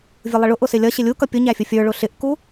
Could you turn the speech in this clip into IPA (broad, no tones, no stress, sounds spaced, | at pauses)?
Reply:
vʲ ʊ lˠ ɪ ɭ ʊ ʔ ʊ s ɪ lʲ ʌ ɕ ɪ lʲ u k ʌ pʲ ʊ ɲ æ fʲ ʊ fʲ ə˞ ɭ ʊ ɬ ɪ ʔ k u